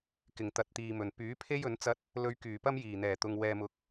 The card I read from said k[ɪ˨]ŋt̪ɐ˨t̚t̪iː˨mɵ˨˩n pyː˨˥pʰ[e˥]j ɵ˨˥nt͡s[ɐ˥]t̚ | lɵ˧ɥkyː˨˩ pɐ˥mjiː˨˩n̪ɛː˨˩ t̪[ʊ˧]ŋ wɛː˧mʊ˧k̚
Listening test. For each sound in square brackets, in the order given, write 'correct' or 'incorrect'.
incorrect, correct, correct, correct

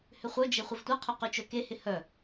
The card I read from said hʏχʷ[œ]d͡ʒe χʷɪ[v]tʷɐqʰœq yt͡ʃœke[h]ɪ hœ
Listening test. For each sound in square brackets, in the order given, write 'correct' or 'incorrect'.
correct, correct, correct

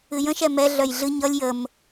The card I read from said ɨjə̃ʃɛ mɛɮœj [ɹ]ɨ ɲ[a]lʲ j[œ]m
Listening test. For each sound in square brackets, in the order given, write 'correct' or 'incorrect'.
incorrect, incorrect, incorrect

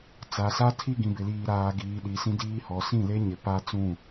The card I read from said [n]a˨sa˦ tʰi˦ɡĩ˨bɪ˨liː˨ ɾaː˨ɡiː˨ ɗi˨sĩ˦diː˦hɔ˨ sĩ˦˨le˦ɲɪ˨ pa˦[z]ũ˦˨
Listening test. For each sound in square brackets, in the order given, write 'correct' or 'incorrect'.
incorrect, incorrect

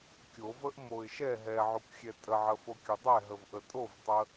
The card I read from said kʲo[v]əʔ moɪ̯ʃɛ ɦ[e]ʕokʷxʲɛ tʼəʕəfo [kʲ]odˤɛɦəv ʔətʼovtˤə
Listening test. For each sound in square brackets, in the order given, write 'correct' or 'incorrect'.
correct, incorrect, correct

